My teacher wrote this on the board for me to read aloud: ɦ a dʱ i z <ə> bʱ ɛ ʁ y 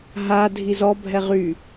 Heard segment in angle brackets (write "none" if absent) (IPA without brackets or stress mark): ɔ